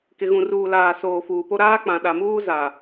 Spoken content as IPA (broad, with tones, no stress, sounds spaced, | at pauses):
k ɪ˨ ɣ ũ˨ r uː˨ l aː˨ s oː˨ f uː˨ p o˦ ɾ aː˦ k͡p ã˨ ɗ a˨ m uː˦ z a˨